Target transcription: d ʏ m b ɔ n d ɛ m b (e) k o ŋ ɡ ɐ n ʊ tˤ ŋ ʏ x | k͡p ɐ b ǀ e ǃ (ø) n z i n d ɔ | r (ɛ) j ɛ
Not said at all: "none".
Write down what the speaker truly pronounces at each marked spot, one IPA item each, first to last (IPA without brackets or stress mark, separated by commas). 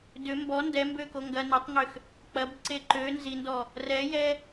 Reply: ø, ø, ɛ